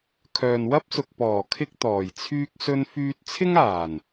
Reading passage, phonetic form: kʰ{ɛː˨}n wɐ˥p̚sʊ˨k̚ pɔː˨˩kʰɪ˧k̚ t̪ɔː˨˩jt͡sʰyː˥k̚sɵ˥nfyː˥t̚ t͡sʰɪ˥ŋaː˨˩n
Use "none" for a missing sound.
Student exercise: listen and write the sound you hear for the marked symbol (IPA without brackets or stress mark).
œː˨